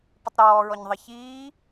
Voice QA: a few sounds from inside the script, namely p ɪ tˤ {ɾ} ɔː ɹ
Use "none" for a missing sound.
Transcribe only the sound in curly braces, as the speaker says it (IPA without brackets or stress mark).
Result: ɾ